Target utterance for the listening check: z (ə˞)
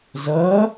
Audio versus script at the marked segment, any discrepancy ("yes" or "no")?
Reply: yes